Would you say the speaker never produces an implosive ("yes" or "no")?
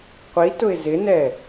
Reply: yes